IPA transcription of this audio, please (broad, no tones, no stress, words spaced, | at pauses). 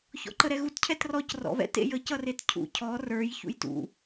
çɔ̰ǃəɾɛɣut cʰɛtrɔc rɔ̰βɛ̰t ḛjə cʌretcʰṵ cʰɔ rə˞j çṵjtṵ